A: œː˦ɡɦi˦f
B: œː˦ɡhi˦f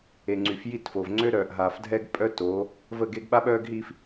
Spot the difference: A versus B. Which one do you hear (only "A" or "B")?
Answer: A